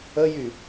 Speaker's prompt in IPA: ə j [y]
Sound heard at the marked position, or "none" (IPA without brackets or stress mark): y